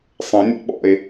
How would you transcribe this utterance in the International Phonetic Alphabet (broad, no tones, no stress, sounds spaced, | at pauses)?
sˤ ə̃ nʲ a̰ ɓ ɔ̰ e̯